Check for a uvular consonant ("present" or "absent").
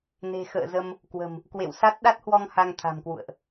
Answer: absent